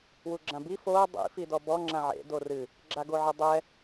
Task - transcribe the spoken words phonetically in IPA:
w u ɡ͡ǁ ã b i f o dˤ ḭ f i d ɔ b ɔ ŋ͡ǁ ã ʕ ḛ d o r ɨ | ɡ͡ǁ a ɡ o ʕ ɨ dˤ ɛ

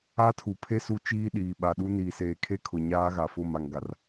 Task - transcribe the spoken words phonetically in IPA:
a˦ tʰ u˨ pʰ e˦ s u˦ t͡ʃ iː˦ ɗ iː˨ ɓ a˨ ɗ u˦ n iː˨ s eː˨ kʰ e˦ kʰ ʊ˨ ɲ aː˦ ɣ a˨ f ʊ˦˨ m a˨ ŋ ɡ a˨ r

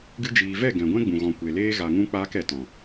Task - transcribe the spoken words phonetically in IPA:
ɡ ɨ˧ d͡ʒ iː˨ v ɛ˦˨ ɡ ɛ̃˨ ɡʷ ɛ̃˦ ɡ͡b ũ˨ ɣ ɔ̃˨ kʷ e˨ l eː˧ ɣ a˨ ŋ ũ˧ k͡p aː˧ k ɛ˨ t ɔ̃˨

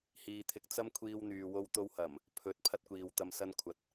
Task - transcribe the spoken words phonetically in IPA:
h iː˧ t̪ʰ ɪ˧ k̚ t͡s ɐ˥ m kʷʰ iː˧ w n̪ yː˨ w o˧ w t̪ o˧ w h ɐ˨˩ m | pʰ ɵ˨˥ t̚ pʰ ɐ˥ t̚ kʷ iː˨ w t̪ ɐ˧ m s ɐ˥ n kʷʰ ɐ˨˥ t̚

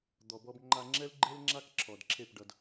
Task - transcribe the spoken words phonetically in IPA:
d̪ ɔ˨ b ɔ˧ b ŋ͡ǃ a˧ ŋ͡ǁ ɛ˦ l ɡ͡ǃ e˦ l ŋ͡ǁ a˦ k ǁʰ ɔ˨ d ǁʰ e˦˨ p ɖ ʌ˧ d

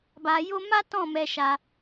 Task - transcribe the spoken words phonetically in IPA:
b a˧ j o˦ m a˦ t ɔ̃˦˨ m ɛ˧ ʃ a˧

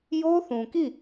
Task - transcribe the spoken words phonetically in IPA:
j o˦ θ ũ˨ k i˦˨

